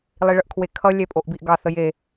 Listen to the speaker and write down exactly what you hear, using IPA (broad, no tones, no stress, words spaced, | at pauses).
lˠiɭəʔkʰwekʰʌ lʲɛpʼoʔbiʔɡɑ θəje